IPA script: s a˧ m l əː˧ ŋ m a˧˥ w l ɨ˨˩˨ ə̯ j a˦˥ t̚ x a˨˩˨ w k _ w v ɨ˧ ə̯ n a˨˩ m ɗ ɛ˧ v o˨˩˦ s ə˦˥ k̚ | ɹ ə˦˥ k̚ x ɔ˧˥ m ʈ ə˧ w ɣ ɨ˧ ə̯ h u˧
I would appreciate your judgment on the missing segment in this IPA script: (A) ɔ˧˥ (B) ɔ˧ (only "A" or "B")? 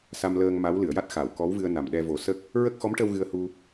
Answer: A